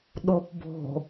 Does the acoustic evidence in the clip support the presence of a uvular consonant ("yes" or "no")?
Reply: no